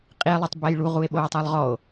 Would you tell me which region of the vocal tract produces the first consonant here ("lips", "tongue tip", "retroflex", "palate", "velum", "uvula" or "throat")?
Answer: uvula